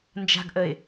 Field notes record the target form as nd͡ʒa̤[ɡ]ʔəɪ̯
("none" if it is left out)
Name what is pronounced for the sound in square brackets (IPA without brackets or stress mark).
ɡ